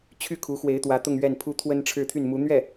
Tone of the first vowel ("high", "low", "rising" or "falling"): high